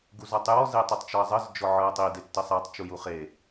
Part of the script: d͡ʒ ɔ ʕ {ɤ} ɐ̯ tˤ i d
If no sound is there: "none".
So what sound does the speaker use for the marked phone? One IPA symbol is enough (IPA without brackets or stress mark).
ɤ